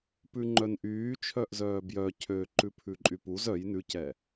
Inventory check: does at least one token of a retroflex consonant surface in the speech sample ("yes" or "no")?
no